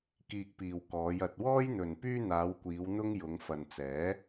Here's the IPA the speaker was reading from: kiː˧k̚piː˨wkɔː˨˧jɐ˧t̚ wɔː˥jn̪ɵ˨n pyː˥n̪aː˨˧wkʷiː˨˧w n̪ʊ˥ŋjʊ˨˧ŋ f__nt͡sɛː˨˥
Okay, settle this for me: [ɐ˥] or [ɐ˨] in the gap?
ɐ˨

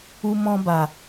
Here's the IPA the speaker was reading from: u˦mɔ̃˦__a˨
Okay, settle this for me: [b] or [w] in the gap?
b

